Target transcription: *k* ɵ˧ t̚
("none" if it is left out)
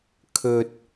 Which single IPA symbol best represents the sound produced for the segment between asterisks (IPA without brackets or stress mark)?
kʰ